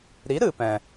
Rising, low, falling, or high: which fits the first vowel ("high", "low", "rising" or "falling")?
rising